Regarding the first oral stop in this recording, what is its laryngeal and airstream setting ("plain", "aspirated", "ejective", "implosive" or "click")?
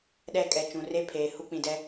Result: implosive